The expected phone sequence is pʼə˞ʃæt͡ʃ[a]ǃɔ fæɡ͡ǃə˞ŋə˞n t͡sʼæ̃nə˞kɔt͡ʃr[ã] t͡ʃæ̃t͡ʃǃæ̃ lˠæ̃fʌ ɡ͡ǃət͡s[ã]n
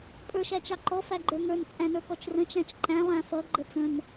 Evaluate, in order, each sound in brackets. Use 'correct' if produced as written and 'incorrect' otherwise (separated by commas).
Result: incorrect, incorrect, incorrect